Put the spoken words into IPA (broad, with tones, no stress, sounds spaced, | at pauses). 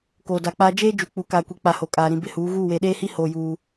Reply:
k oː˨ d a˨ k͡p aː˦ d͡ʒ eː˦ d͡ʒ u˨ k͡p u˨˦ k aː˨ kʷ i˨ k͡p a˨ h o˨ kʼ aː˨ ɾ ĩ˨ b ɪ˦˨ h uː˨˦ ɣ uː˦˨ w e˨ ɗ eː˦ h i˦ h oː˨ j uː˨